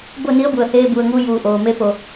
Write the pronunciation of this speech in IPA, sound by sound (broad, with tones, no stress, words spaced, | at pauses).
bo˥˨ni˧˥ə̯ bu˩ə̯heː˧bu˩ə̯ŋuː˧ juː˩ ʔoː˩ me˧˥po˩